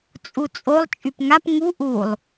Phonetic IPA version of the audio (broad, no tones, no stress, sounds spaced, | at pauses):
t͡sʼ u t͡sʼ o lˠ t͡ʃʼ y p ŋ a p ŋ u ʔ u lˠ